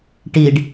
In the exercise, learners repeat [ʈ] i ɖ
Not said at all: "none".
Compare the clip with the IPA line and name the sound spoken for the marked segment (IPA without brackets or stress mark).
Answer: ʈ